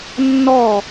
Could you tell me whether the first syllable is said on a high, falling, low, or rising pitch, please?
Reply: falling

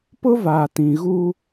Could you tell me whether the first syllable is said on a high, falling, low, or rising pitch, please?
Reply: high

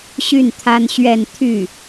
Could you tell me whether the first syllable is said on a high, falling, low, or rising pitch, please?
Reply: falling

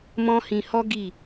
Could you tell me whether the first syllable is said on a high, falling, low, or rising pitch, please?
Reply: high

